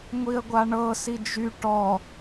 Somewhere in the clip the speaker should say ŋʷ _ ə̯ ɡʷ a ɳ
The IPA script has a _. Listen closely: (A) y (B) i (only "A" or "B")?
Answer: B